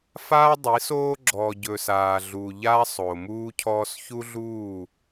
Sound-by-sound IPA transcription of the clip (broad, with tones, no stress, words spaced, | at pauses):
faː˦dˤi˨˦soː˦ ɡ͡ǁɔː˨ɟɵː˨s aː˨ɮuː˨ʎaː˦ sˤoː˨muː˦cʰɔː˦s çu˦ɮuː˦˨